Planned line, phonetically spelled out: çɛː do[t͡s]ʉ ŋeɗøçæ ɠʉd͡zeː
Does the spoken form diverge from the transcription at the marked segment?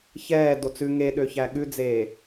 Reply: no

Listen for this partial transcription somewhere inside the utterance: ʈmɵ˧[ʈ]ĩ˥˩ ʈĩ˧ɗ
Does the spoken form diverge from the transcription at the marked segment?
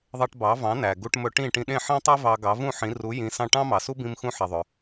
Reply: no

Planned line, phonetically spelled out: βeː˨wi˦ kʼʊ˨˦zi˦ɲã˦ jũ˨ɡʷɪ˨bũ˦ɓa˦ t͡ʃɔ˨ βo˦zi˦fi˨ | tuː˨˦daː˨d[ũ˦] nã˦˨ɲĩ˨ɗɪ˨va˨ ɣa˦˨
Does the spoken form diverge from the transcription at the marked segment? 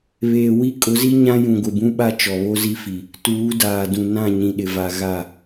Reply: yes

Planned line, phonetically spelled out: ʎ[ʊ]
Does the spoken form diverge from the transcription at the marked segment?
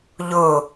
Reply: no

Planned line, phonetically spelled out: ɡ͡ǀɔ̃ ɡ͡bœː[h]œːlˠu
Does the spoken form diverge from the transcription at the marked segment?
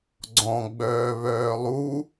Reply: yes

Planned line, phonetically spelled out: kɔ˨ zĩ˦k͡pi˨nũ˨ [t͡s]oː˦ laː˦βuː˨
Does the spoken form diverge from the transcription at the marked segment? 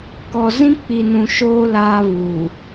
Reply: yes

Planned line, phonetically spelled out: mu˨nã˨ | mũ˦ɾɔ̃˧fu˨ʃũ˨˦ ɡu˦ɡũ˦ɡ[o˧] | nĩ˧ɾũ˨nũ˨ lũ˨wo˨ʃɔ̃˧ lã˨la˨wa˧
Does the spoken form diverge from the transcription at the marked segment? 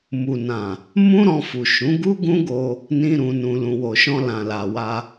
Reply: no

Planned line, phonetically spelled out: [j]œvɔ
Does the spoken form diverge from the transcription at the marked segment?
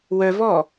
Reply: yes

